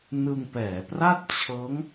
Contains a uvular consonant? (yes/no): no